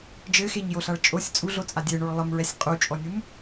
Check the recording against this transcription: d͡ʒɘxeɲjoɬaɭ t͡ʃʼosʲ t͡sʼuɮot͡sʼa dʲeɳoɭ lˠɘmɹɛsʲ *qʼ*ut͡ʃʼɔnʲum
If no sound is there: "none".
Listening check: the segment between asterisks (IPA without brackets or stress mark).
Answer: qʼ